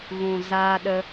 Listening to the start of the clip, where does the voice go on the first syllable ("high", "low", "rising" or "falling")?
low